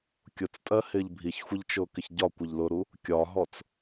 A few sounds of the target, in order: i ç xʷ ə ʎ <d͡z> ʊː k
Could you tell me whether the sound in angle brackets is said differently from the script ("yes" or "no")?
yes